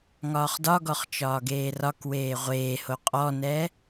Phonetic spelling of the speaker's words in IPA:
ŋɒːχdɒɡɔχ t͡ʃɒːɡeːrɒkweː ʁʷeːho qʼɔnɛ

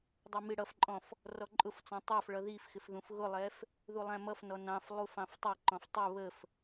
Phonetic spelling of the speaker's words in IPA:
dˤʌmiɽʌfǃʼɔ̃f | rɔǃʼʊft͡sɔ̃ tˤɑfɭʌ ðifxɪf ðũfɣʊlˠɛf | ðulˠæ̃mʌfnɔ nɑ̃f lˠufɑ̃ftˤɛǃɔ̃f tˤʊ βəf

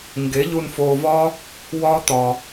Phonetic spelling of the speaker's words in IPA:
ŋɡe˨˦ʎu˧nfoː˧vɒː˦ | wɒː˦ t̪ɒː˧

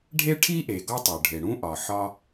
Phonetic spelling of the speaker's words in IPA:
ɖʱe˥ʈʰi˥ʔe˩ ɡɒ˥ tˤo˩ɖʱe˩ ɽũ˥ʔɒ˩ ħɒ˥

